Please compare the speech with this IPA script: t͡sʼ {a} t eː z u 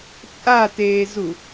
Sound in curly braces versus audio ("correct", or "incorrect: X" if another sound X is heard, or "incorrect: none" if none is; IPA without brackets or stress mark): correct